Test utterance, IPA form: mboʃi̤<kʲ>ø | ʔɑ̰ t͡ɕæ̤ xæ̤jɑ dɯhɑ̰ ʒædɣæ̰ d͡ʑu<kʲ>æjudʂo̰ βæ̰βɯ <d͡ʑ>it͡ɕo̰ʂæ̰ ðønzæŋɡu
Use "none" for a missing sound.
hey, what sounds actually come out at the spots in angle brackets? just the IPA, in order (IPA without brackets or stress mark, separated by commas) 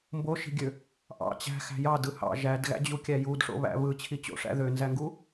ɡʲ, kʲ, t͡ɕʰ